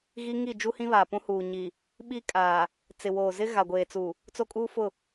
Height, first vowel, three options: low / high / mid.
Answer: high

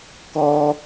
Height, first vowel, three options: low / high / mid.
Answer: mid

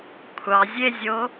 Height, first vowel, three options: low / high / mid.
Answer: low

